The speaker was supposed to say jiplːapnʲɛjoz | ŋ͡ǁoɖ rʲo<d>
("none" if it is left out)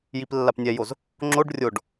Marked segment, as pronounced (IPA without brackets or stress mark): ɖ